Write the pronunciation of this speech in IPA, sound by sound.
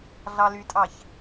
ɮ ɑ l y tʼ ɑ ç

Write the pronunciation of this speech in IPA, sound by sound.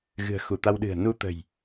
ɣ ɨ̤˨˩ ə̯ x u˧˩ t̪ a˧ w ɗ ɨ̤˨˩ ə̯ n u˧ t̪ ə̤˨˩ j

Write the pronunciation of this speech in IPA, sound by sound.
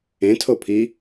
ẽ tʰ o pʰ i

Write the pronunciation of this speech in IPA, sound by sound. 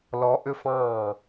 l ɔ˧˥ ʔ ʏ˥ f ɑ̃ː˥˩

